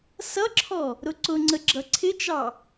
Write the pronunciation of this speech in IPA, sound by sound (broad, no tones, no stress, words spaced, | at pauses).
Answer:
sʌǁʰɔ | ɾʊǀʊŋ͡ǀə ɡ͡ǁʌǀʰɪt͡ʃɑ